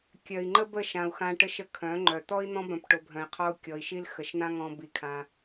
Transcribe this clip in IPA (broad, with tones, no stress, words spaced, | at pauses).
kʲœ˨i̯ŋ͡ǃə˦bə˦˨ ʃã˨u̯xã˧ ʈə˦ʃə˦ kʰœ̃˨˦ŋ͡ǃœ˨ t̪ɔ˦i̯n̪ɔ̃˦bœ̃˧p ʈo˧bʱœ̃˧i̯qʰɔ˦u̯ kʲɔ˨i̯ʃi˦l xə˨ʃn̪ã˦ŋɔ̃˧ bi˧kʰã˧